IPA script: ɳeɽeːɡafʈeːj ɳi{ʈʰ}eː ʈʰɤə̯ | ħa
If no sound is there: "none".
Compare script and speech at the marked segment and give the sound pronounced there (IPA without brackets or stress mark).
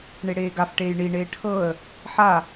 ɳ